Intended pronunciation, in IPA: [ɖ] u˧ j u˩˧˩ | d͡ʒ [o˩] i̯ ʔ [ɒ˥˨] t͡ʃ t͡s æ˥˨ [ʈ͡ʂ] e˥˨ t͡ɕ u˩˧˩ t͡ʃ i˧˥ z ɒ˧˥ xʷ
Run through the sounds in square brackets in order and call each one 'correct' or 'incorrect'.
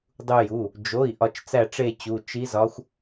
incorrect: dˤ, incorrect: o˩˧˩, incorrect: ɒ˧, correct

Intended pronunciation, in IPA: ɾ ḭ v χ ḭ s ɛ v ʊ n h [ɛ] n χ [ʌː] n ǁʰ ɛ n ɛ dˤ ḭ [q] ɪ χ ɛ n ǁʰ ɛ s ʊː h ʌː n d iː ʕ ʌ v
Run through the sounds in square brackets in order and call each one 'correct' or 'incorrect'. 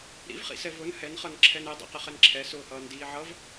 correct, incorrect: ʌ, correct

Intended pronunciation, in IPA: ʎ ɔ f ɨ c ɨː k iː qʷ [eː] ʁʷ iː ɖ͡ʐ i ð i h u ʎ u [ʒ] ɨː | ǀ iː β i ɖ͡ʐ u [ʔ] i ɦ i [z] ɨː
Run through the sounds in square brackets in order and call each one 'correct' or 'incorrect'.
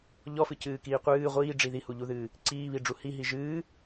incorrect: ɨː, incorrect: ð, incorrect: h, incorrect: ʒ

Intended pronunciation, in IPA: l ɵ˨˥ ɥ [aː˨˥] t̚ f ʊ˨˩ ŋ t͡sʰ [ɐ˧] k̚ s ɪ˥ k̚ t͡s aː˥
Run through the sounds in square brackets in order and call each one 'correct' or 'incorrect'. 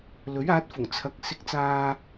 correct, correct

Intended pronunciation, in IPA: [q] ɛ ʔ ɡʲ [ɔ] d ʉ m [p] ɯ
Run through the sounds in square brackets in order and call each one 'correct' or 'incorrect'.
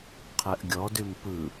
incorrect: qʰ, correct, correct

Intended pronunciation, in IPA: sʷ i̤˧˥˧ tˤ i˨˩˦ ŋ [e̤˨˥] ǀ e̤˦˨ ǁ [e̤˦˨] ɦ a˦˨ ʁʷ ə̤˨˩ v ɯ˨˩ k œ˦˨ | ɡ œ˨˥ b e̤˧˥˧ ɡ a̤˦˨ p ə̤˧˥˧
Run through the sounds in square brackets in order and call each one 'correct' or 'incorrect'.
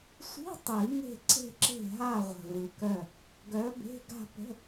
incorrect: e̤˦˨, correct

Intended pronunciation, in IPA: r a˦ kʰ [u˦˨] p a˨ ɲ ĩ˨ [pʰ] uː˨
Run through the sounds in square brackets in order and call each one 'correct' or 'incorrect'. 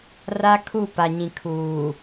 correct, incorrect: kʰ

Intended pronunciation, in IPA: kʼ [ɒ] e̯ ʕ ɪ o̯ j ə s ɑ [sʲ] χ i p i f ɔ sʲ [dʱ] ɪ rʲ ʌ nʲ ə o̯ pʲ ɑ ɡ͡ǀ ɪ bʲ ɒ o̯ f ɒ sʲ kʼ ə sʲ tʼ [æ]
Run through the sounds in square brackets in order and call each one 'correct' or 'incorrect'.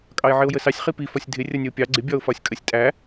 incorrect: ɑ, correct, correct, correct

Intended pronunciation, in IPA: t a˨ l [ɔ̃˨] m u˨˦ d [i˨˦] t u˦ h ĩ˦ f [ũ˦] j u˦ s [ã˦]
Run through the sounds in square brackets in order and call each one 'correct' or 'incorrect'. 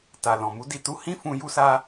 correct, incorrect: i˧, correct, incorrect: a˦

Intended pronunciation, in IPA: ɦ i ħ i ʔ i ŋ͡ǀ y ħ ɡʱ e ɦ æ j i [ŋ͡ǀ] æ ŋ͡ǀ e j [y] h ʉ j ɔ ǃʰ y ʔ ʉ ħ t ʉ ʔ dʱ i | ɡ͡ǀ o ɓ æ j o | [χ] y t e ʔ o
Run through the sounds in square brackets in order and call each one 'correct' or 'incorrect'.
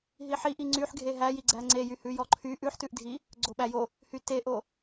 incorrect: ɡ͡ǀ, correct, incorrect: h

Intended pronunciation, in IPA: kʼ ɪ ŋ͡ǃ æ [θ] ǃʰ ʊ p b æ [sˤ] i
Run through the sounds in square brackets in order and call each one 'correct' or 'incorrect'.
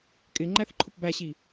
correct, incorrect: ɕ

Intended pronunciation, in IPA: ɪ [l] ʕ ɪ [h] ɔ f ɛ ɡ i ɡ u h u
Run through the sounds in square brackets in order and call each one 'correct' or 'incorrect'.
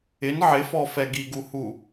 incorrect: n, incorrect: f

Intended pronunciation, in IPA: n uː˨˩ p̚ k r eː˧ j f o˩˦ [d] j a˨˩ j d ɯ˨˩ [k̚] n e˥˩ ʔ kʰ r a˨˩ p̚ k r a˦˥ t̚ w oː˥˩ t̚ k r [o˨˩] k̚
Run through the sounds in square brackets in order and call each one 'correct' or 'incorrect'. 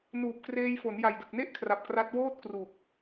incorrect: n, correct, incorrect: u˨˩

